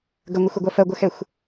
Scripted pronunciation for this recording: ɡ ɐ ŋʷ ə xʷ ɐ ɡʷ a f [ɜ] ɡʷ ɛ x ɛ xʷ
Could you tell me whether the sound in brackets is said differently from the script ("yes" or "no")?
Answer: no